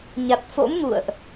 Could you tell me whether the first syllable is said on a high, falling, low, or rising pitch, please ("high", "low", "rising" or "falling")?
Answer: low